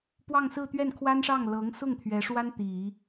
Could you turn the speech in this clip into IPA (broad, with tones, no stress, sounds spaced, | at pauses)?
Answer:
p w ɑ˥˧ ŋ s ɹ̩˥˧ t̪ ɥ ɛ˥˩ n kʰ w a˥ n ʂ ɑ˥˩ ŋ l ɤ˧˥ ŋ s ʊ˥˩ ŋ t̪ʰ ɥ ɛ˧˥ ʂ w a˥ n t̪ i˨˩˦